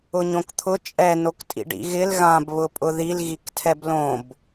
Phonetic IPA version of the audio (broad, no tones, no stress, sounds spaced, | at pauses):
ʊ ɲ õ k t̪ʰ ʊ t͡ʃʼ ɛ n o k tʼ ḭ ɖ ḭ ɣ ɪ l ɣ ã b β ʊ pʼ ʊ ð i l ɣ i k tʰ ɛ b l õ b